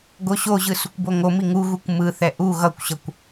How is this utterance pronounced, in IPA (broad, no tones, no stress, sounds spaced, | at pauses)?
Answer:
ɡ o ɕ o ʑ ɯ s u kʷ b o ŋ o m i ŋ u ɣ u kʷ m ɯ θ ɛ ʔ u ɣ ʌ kʷ ɕ ʌ kʷ